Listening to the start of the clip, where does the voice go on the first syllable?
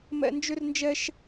high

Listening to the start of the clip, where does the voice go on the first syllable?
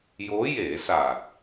rising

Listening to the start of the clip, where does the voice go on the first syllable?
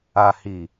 low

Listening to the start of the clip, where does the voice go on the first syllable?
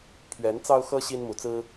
rising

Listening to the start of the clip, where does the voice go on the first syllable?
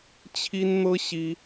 high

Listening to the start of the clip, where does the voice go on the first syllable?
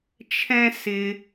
high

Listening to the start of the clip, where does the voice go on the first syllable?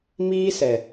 high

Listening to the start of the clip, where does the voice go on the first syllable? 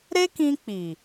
high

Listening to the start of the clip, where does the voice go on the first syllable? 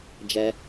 high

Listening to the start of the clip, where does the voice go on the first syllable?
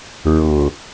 low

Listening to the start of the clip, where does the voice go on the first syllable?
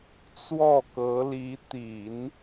falling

